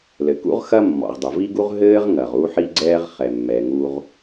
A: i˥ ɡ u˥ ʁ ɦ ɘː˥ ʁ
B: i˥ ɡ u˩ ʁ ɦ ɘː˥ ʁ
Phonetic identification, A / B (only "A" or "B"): A